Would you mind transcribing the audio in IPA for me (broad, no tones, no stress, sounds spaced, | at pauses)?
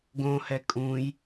ɡ õ h ɛ kʼ ũ j